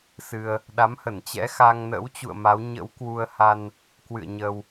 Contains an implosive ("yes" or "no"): yes